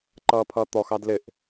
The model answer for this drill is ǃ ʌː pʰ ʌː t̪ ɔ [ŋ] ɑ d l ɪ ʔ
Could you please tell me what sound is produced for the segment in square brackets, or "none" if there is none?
x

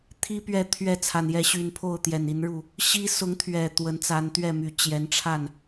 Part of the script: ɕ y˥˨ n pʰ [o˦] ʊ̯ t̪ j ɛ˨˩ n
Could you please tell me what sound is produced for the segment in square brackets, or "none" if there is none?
o˥˨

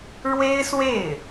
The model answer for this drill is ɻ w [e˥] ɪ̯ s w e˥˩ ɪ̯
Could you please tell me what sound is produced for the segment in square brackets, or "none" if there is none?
e˥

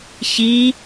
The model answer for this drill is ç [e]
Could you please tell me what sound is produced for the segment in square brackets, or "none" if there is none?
i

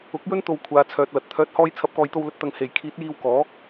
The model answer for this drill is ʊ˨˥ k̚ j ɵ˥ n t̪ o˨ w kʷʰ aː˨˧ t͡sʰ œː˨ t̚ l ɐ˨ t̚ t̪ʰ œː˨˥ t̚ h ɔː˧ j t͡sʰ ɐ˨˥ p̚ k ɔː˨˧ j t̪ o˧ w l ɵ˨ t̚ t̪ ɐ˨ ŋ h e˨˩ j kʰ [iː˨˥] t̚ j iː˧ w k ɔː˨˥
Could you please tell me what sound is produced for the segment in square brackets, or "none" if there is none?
iː˨˥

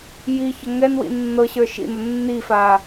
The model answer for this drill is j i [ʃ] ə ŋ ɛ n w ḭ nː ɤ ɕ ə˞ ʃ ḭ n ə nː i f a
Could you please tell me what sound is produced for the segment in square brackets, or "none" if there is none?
ç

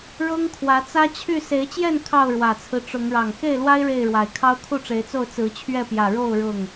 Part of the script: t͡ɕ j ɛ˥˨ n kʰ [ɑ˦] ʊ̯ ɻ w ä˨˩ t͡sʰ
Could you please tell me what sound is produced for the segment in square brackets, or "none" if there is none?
ɑ˥˨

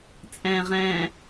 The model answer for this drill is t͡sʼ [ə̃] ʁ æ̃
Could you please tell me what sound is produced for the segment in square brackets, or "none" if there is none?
æ̃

